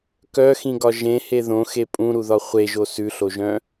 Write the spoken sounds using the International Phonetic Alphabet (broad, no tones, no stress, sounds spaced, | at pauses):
k œ x ĩ ɡ ɒ ʒ ẽ h e ð õ x e pʼ ũ ɾ u ð ɒ χʷ e ʒ o s ʉ ɬ o ʒ œ̃